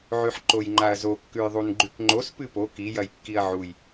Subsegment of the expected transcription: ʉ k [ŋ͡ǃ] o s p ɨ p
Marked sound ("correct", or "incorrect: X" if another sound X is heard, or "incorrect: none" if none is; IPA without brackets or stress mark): correct